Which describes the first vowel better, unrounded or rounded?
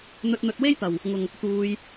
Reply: rounded